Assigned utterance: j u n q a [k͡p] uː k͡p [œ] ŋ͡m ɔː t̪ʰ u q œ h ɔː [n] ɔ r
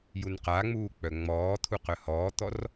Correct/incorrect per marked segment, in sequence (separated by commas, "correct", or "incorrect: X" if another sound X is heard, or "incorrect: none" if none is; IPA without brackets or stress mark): incorrect: ŋ͡m, correct, incorrect: t̪